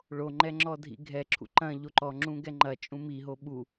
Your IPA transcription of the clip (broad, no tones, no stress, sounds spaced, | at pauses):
ɭ o ŋ͡ǃ ɛ ŋ͡ǁ ɔ dʱ ḭ ɡʱ ɛ ǁʰ ṵ ǃ ɐ̃ ʎ o ǃ ɔ ŋ͡ǁ ũ ɡ ɛ ŋ͡ǃ ɐ t͡ʃʼ ũ m i ɦ o ɓ u